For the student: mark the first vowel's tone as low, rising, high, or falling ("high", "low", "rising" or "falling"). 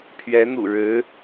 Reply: rising